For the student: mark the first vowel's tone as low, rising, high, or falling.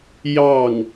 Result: falling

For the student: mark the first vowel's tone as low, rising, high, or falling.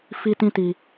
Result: high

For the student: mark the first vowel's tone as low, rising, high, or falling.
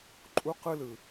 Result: high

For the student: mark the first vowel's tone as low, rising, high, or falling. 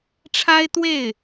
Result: high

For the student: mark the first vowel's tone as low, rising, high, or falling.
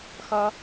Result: high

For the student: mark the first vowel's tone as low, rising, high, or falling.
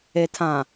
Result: low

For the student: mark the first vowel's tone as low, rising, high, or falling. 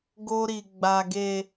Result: high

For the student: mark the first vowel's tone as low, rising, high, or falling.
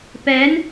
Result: rising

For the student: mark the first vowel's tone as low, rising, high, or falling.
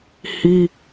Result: high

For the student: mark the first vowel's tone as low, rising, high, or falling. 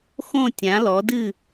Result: falling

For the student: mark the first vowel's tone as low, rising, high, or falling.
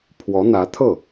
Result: rising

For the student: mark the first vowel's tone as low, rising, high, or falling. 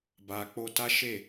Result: low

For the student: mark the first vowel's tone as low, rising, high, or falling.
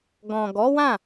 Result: low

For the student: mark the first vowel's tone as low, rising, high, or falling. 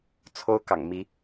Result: high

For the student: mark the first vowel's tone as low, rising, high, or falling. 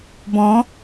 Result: rising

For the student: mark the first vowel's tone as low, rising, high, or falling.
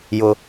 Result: high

